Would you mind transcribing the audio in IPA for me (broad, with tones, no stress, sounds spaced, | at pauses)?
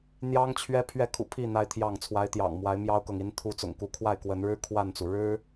n̪ j ɑ˦ ŋ t͡ɕʰ ɥ ɛ˦ pʰ ɥ ɛ˥˨ kʰ ṵ˨˩ pʰ i˥˨ n̪ a˦ ɪ̯ t̪ʰ j ɑ˥˨ ŋ t͡sʰ w a˨˦ ɪ̯ t̪ j ɑ̰˨˩ ŋ m w a˨˦ ɪ̯ m j ɑ˦ ʊ̯ k ɤ˨ ŋ i˨˦ n t̪ʰ u˨˦ t͡s ʊ̰˨˩ ŋ k u˨˦ kʰ w a˥˨ ɪ̯ k w ə˨˦ n ɻ ɻ̩˦ kʰ w a˥˨ n t͡s u˩ ɻ ɻ̩˦